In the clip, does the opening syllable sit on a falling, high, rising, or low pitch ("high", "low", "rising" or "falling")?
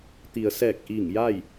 low